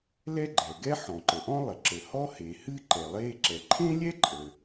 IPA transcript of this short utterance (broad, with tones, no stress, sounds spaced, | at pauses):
l ɛ˥ ɡ͡ǃ ɛ˩ ɡ ɛ˥ ħ ɔ̃˩ ǃ ə˩ ʔ ɔ̃˥ lˠ ə˩ ǁ ə˩ h ɔ˥ h e˩ h ɨ˥ ǃ ɛ˩ lˠ e˥ ǁ ɛ˩ ǃʰ ẽ˥ lʲ ɛ˥ ǃʼ ə˩